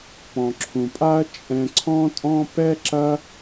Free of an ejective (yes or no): no